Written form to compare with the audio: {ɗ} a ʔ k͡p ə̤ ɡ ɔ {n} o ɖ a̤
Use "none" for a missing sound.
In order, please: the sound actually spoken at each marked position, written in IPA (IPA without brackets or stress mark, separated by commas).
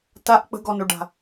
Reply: t, n